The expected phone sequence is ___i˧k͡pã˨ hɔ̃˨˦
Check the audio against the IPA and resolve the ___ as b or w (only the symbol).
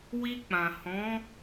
w